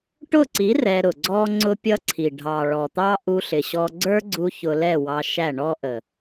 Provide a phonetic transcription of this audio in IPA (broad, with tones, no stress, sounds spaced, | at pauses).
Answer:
ʈ ʊ˦˨ ǀ i˨˦ r ɛ˧ ɾ ʊ˨ ɡ͡ǀ ɔ˦ ŋ͡ǀ ʊ˦ pʲ ʌ˦ ǀʰ i˨ ɖʱ ɑ˨ ɭ ɔ˨ t̪ ɑ˦ ʔ u˧ ɬ ɪ˨ ɕ ɔ˧ ɡ͡ǀ ə˞˦ ɡ͡ǀ u˧ ç ʊ˧ l ɛ˦˨ w ɑ˧ ʃ æ˦˨ ɳ ɔ˦ ʔ ə˨